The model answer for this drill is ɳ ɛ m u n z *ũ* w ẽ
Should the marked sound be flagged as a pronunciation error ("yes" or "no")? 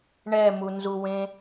yes